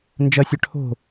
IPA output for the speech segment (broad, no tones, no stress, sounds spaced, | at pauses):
n d͡ʒ ɐ sʲ œ ʈʰ o̤